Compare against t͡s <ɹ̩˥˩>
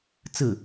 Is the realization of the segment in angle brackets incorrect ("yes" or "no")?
no